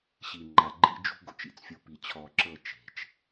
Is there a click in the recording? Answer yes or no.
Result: yes